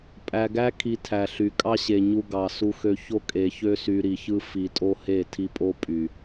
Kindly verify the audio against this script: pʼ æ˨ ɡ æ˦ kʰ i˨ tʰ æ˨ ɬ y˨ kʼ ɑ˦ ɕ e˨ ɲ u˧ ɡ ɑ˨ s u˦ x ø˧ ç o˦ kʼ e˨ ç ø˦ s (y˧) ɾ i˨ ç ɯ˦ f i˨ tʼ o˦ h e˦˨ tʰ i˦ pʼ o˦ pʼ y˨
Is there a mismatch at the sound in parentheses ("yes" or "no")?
no